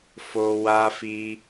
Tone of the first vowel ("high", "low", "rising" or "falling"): high